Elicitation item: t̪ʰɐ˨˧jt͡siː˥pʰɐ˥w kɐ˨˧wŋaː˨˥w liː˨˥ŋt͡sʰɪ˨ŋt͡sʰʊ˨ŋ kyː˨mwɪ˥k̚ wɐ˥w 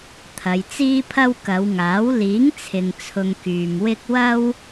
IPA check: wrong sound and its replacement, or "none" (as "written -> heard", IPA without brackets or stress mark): none